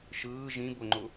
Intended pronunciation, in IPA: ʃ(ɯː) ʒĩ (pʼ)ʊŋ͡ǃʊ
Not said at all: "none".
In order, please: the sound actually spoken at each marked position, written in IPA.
ɯː, b

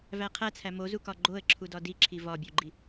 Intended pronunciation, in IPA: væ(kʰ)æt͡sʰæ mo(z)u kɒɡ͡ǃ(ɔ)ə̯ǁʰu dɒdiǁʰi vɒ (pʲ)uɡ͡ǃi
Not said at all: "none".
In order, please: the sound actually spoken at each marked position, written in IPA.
qʰ, z, o, bʲ

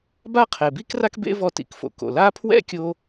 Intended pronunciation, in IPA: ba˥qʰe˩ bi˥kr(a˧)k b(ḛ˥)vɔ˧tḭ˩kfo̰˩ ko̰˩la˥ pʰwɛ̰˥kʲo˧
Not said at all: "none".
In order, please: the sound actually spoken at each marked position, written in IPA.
a˥, ḛ˥

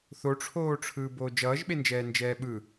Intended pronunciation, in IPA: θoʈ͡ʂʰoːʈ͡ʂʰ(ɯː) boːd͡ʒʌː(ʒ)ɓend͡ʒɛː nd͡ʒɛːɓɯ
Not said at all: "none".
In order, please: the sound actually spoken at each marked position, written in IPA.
ɯː, ʒ

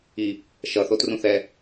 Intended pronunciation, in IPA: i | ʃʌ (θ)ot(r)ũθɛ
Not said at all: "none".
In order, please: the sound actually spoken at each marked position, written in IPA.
θ, r

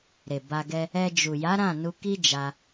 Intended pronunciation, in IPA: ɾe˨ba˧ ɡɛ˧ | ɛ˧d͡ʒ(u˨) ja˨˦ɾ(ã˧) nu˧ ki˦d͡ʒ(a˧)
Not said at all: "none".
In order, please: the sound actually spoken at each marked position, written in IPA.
u˨, ã˦˨, a˧

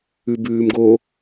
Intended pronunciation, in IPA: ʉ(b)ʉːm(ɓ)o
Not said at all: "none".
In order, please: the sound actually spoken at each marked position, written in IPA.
b, ɡ

